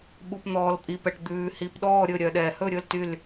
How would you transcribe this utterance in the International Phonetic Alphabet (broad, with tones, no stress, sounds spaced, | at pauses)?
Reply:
ɓ u˩ p n̪ ɔː˩ l pʼ i˩ p ɛ˩ ʈ d̪ ʉː˩ h i˩ p ɗ ɔː˥˨ ɾʲ ɵ˥˨ ɾʲ œ˩ ɗ ɛː˩ h ɵ˥˨ ɾʲ ɵ˥˨ l t y˥˨ l